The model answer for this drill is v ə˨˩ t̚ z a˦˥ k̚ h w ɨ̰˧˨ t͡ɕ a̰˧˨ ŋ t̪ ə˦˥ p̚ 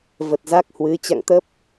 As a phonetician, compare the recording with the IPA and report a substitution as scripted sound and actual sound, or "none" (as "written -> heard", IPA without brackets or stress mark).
ɨ̰˧˨ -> ɨ˨˦